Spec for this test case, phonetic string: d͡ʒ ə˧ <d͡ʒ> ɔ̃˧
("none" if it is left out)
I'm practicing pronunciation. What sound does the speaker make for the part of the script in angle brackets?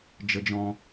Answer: d͡ʒ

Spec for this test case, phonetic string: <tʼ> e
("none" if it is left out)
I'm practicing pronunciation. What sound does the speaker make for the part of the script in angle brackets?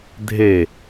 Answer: dʱ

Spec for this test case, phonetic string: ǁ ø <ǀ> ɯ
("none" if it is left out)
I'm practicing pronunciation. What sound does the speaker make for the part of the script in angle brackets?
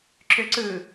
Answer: ǀ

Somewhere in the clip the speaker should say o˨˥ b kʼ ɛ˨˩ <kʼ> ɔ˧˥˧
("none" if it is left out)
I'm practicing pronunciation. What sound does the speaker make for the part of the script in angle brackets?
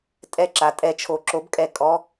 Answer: kʼ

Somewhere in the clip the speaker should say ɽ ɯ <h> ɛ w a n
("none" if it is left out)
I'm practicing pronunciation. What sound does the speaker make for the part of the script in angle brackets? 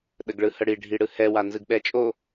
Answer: h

